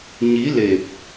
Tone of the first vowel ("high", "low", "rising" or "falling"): rising